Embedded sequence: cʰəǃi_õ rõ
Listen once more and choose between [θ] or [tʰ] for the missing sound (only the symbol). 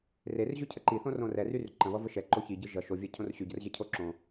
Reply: θ